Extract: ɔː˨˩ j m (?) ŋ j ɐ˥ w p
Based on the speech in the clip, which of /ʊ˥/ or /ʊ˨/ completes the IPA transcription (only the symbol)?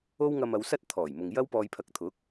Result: ʊ˨